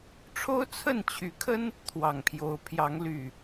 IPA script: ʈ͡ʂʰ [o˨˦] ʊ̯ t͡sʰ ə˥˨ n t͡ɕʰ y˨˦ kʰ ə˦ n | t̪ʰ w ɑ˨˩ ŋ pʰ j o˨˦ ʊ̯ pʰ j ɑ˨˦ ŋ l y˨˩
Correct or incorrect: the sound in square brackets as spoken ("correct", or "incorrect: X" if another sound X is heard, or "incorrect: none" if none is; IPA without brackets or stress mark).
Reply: incorrect: o˦